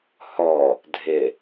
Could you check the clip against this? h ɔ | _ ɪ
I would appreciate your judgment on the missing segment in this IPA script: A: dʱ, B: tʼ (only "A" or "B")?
A